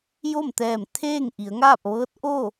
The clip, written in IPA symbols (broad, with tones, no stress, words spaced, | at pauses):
jo˥˨mt̪ɛː˧˩m t̪ʰeː˥˨ŋ ʔi˩˧ə̯ŋaː˥˨p̚ ʋɤː˧˥t̚ʔo˥˨